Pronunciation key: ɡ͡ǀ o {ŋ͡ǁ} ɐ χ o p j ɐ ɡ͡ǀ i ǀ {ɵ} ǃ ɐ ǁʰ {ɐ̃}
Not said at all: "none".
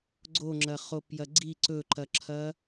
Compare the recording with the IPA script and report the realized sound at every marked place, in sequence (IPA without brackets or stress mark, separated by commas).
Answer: ŋ͡ǁ, ɵ, ɐ